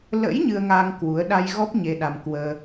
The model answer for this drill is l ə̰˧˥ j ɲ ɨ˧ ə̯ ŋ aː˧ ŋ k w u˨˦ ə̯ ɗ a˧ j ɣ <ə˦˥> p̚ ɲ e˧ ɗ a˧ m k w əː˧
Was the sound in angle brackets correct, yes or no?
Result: no